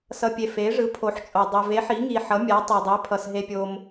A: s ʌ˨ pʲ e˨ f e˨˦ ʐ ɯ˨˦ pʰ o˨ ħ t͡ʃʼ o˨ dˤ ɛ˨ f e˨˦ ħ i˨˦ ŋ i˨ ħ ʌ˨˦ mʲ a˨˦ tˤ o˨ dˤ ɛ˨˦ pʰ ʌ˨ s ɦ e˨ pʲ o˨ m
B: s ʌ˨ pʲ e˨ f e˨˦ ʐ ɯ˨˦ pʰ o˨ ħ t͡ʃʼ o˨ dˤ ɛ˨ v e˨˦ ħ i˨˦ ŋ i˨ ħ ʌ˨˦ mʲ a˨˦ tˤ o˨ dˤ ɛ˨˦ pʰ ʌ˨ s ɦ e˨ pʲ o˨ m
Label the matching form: B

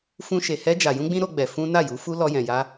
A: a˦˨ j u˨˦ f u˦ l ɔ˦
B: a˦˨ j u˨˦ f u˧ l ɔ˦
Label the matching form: A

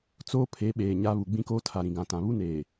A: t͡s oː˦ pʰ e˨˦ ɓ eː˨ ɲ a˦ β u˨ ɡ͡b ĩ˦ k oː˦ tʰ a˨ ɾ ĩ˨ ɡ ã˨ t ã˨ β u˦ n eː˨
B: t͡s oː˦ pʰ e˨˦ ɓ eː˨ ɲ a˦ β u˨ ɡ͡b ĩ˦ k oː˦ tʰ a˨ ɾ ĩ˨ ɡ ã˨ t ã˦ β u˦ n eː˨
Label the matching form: A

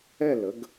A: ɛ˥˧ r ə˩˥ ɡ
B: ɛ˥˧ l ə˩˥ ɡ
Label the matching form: B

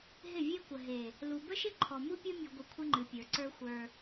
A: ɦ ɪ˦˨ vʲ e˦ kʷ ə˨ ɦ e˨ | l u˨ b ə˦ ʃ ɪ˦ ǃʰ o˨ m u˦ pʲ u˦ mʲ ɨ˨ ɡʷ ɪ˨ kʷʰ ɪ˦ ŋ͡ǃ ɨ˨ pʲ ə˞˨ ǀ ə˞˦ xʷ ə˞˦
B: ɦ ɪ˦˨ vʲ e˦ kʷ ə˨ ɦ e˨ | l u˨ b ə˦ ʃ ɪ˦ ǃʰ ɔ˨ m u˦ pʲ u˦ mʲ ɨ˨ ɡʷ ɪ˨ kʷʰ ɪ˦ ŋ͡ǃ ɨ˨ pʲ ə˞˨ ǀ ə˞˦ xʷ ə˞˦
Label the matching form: B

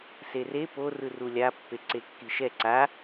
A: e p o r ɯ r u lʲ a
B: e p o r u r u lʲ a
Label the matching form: A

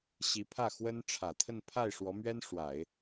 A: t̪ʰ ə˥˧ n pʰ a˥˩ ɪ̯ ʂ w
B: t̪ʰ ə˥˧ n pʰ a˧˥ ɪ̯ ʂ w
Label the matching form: A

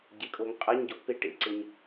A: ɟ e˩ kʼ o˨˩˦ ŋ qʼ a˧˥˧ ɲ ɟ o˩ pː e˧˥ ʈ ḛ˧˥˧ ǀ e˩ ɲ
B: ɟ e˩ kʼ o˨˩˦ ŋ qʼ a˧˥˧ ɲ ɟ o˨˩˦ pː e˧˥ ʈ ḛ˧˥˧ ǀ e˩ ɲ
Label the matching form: B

